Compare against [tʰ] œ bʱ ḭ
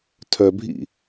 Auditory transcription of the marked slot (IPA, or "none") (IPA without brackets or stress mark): tʰ